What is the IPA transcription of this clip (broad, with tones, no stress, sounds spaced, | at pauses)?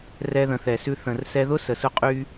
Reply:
r ɛ˧ ð ə̃˨ θ ɛ˨ s ʉ˧ θ ə̃˨ r s ɛ˧ ð ʊ˦ s ə˨ s ʊ˧ qʼ y˧